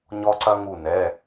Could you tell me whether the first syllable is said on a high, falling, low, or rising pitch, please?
high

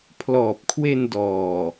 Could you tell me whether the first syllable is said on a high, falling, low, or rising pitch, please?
low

